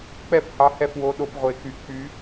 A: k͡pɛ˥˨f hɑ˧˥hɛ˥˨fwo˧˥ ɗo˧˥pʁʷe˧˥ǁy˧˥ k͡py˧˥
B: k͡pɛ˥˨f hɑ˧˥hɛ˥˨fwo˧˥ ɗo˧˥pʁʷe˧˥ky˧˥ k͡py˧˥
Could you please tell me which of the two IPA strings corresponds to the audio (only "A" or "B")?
B